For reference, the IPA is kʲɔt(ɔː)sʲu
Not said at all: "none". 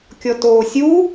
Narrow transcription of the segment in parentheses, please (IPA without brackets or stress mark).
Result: oː